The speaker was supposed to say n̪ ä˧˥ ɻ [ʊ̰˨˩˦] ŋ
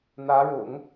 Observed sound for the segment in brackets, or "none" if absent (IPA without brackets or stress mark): ʊ̰˨˩˦